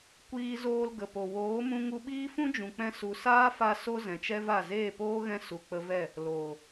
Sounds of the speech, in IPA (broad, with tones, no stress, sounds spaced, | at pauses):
kʷ iː˦ z oː˦ l ɡ ə˨ p o˨ w oː˨˦ m ũ˧ ŋ u˧ ɓ iː˦ f ũ˦ d͡ʒ ũ˨ k͡p ɛ̃˧ s u˨ s aː˦ f a˧ s o˦ z ɛ̃˨ t͡ʃ ɛ˦ v a˦˨ z eː˦˨ p oː˦ ɣ ɛ̃˧ s u˨ k͡p ə˧ v ɛ˦˨ | l oː˨